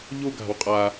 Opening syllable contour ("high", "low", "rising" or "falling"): falling